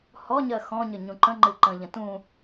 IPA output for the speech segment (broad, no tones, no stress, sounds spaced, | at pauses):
h ɔ ɲ ɜ x ɔ̃ ɲ ə ɲ ũ ǃ ə̃ ŋ͡ǃ ɨ ǃ ə̃ ʎ ə̃ t ũ